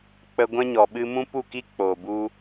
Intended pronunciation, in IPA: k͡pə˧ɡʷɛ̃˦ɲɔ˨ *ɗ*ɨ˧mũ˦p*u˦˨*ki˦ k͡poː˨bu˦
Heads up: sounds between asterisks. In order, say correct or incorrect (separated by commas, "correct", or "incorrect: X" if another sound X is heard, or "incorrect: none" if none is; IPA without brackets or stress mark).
incorrect: ɓ, correct